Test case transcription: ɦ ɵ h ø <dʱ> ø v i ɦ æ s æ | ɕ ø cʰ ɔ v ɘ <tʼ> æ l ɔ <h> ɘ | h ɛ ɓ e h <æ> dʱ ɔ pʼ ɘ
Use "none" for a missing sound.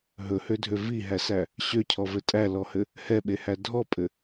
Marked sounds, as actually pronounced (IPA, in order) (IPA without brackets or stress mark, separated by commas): dʱ, tʼ, h, æ